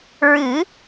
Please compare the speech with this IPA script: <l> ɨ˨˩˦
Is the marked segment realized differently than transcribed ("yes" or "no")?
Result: yes